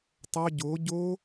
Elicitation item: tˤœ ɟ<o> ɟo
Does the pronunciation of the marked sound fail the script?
no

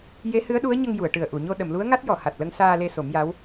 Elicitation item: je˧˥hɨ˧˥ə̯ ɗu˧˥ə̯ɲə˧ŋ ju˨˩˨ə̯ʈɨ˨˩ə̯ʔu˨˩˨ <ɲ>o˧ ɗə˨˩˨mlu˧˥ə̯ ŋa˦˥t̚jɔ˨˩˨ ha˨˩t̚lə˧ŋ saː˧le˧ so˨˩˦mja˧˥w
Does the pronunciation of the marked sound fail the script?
no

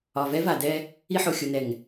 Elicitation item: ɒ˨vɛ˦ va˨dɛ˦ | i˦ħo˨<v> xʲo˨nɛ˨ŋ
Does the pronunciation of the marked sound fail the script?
yes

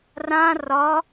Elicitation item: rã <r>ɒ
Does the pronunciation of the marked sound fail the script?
no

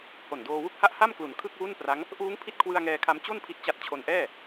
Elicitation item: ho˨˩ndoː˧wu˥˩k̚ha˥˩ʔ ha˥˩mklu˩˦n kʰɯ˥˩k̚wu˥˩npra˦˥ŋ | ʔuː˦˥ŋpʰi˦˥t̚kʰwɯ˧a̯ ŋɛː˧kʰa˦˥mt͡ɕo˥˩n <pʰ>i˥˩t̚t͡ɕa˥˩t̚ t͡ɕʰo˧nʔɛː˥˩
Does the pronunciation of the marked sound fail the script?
no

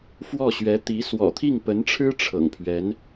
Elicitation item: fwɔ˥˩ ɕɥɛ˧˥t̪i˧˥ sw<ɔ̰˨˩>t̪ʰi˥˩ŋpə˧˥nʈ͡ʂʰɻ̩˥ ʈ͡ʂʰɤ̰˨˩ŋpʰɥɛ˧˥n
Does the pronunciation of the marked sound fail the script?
no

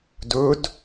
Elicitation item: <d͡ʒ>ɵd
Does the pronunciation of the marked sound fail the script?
yes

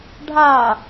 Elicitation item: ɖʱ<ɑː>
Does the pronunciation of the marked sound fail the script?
yes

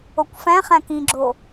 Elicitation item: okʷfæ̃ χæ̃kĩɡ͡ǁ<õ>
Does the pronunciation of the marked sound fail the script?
yes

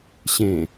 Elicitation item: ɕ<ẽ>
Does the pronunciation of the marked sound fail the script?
no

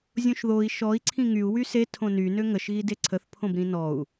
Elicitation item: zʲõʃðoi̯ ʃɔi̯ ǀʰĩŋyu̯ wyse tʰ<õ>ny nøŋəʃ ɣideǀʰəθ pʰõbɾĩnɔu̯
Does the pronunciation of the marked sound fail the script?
no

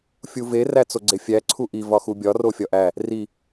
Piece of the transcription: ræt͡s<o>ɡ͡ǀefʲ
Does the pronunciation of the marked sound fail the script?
no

